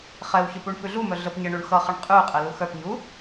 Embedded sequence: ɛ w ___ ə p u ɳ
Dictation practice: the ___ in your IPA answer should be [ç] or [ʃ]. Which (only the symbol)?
ç